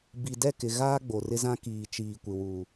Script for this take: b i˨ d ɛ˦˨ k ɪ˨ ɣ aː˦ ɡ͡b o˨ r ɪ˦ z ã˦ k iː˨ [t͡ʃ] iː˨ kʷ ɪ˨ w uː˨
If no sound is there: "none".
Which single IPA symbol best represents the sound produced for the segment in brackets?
t͡ʃ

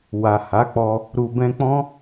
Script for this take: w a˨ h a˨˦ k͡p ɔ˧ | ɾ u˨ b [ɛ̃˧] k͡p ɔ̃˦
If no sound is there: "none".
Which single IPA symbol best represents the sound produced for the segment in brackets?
ɛ̃˧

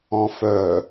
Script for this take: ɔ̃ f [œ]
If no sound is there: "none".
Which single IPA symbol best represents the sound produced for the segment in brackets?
œ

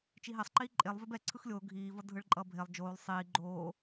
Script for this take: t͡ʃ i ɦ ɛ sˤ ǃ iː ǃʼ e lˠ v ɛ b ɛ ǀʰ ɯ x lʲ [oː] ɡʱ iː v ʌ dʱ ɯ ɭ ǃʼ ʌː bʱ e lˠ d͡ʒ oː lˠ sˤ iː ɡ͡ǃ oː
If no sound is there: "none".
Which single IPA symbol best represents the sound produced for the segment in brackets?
oː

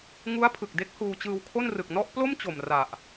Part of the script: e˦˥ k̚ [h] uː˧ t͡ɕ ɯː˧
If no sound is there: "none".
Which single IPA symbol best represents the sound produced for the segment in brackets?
h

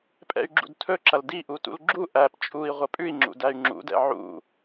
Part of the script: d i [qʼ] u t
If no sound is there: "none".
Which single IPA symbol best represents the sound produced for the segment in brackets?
ʔ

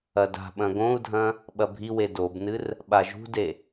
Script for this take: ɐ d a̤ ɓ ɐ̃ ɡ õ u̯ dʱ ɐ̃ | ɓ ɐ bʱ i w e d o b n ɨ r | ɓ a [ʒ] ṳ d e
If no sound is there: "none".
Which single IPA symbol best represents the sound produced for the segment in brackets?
ʒ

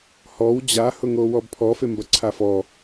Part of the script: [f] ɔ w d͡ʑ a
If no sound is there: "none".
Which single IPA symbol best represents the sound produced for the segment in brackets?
h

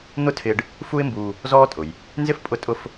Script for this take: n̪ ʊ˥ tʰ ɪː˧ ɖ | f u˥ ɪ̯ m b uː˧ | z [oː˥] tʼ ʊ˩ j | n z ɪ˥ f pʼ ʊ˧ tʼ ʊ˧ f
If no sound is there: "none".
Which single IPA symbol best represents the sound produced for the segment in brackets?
ɔː˥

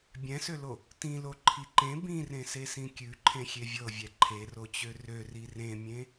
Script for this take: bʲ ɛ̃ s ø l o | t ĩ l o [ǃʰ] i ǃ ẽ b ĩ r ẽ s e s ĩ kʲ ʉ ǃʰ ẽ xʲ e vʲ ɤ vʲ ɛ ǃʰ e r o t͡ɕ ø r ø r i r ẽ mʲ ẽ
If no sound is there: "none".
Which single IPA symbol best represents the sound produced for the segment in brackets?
ǃʰ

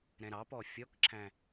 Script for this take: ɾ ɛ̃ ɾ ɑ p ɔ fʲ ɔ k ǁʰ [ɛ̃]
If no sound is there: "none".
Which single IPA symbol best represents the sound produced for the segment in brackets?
æ̃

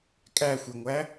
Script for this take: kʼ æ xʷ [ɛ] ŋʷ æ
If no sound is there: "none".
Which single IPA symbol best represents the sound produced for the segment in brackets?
ɛ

